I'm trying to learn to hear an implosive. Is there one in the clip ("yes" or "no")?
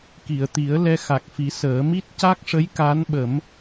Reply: yes